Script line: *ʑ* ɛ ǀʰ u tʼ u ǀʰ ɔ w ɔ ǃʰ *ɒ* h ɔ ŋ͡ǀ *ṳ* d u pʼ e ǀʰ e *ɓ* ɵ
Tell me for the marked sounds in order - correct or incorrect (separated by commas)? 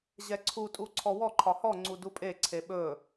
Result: correct, correct, incorrect, correct